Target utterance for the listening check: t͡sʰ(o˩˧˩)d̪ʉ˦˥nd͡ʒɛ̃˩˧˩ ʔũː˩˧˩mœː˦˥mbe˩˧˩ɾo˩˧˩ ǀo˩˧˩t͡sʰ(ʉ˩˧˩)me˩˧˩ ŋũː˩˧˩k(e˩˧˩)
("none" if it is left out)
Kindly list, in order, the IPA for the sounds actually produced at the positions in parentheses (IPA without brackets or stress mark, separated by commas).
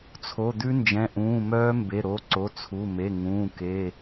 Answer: o˩˧˩, u˩˧˩, e˩˧˩